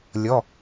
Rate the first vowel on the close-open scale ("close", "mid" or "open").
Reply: mid